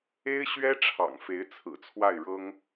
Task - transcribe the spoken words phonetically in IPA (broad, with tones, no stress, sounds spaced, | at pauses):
e˥ ɪ̯ ɕ ɥ ɛ˥ ʈ͡ʂʰ ɑ̰˨˩ ŋ f e˧˥ ɪ̯ t͡sʰ ɹ̩˨˩ t͡sʰ w a˥˩ ɪ̯ ɻ ɤ˥ ŋ